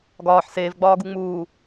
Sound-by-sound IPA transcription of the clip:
ɡ ɒː ħ s eː v ɡ͡b ɒː ɡ u ŋ͡m uː

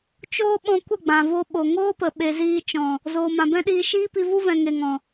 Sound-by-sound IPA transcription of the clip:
t͡ʃ oː˦ ɓ ɔ̃˧ kʷ ə˦˨ ɡ͡b ã˨ v o˧ ɓ o˨ ŋ oː˦ p ə˨ ɓ e˨ z iː˧ t͡ʃ ɔ̃˨ | z oː˨ m ã˨ b ɛ̃˦ ɗ iː˧ ʃ iː˦ p i˧ v u˦ v ɛ̃˨ ŋ e˨ ŋ ɔ̃˨

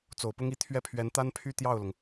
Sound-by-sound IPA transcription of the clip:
t͡s o˨˩ ʊ̯ p ʊ˥ ŋ i˥˧ t̪ʰ ɥ ɛ˥˩ pʰ ɥ ɛ˧˥ n t̪ a˥ n pʰ y˥˧ t̪ j ɑ˥˩ ʊ̯ l ʊ˩ ŋ

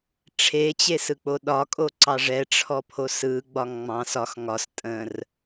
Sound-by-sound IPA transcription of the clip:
ʈ͡ʂʰ e t͡ɕ e s ɯ k͡p o ɗ ɒ kʼ o ǀ ɑ ʐ ɛ ʈ͡ʂʰ ɔ pʰ o s ɯ ɡ͡b ɒ ŋ ŋ͡m ɑ̃ s ɒ x ŋ ɒ s tʼ ə̃ r

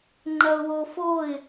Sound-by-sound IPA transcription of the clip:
ŋ͡ǃ ɐ ʊ̯ w o f o ɪ̯

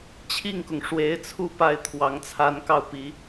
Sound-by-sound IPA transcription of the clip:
t͡ɕʰ i˥˩ ŋ k ʊ˩ ŋ ʂ w e˧˥ ɪ̯ t͡sʰ u˥˧ p a˥˩ ɪ̯ t̪ʰ w ɑ˧˥ ŋ t͡sʰ a˧˥ n k ɑ˥˩ ʊ̯ p i˧˥

